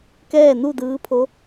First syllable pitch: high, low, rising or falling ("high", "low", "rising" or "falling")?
falling